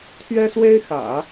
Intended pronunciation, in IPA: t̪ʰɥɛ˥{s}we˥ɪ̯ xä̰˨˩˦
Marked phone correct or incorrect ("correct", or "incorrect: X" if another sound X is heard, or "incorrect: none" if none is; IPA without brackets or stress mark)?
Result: correct